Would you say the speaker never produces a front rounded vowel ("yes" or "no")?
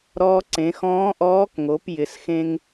yes